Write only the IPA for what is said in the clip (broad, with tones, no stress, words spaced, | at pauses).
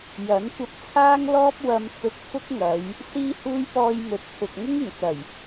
jɐ˨˥n kʷɐ˧p̚t͡sʰaː˥ŋ lɔː˥p̚wɐ˧m t͡sʊ˧k̚fʊ˥k̚ŋɐ˨˧j | siː˥huː˥j pɔː˧jmɵ˨t̚pʰʊ˨k̚ ŋʊ˥ŋɪ˨˩ŋt͡sɐ˨˩j